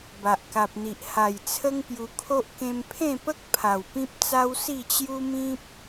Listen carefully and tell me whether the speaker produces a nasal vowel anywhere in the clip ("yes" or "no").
yes